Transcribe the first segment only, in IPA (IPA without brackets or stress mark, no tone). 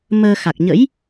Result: m